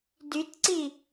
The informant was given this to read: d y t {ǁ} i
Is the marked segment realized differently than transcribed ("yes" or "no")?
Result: yes